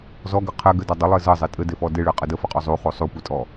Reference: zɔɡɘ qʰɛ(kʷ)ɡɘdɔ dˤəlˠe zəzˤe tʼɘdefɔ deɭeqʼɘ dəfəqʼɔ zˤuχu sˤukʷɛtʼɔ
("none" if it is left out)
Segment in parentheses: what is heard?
none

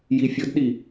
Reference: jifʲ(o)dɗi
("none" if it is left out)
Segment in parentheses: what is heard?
ɤ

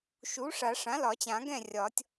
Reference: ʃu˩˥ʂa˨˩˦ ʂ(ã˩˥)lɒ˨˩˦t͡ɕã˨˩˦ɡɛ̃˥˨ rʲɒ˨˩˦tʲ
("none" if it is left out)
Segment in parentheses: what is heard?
ã˩˥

